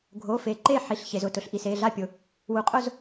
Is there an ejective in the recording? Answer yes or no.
yes